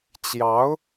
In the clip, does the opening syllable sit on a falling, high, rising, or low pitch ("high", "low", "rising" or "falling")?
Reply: rising